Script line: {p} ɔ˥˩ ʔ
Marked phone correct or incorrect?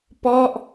correct